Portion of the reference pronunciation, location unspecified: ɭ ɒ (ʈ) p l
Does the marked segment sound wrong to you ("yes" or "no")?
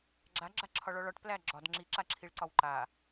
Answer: no